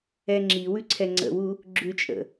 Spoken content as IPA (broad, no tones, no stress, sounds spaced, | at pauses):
ɛ ŋ͡ǁ i w ʉ ǀʰ ɛ ŋ͡ǀ ə̰ w u | ɡ͡ǁ ʉ t͡ʃʼ ə̰